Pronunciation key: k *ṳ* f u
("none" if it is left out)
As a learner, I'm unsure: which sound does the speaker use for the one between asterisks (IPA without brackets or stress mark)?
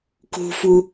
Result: ṳ